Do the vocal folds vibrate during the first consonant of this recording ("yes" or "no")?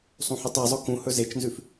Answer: no